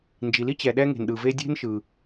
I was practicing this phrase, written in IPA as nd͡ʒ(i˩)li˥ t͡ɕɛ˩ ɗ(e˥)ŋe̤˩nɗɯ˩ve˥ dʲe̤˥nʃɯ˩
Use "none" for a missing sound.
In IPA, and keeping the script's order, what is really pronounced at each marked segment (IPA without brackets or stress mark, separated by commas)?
i˩, ɛ˥